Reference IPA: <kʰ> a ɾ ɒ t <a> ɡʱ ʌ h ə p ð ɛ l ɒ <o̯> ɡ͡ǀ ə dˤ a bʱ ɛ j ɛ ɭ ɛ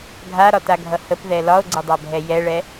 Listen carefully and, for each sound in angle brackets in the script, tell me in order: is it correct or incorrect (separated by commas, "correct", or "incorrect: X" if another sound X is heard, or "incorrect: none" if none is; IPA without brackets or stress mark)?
incorrect: ɡʱ, correct, correct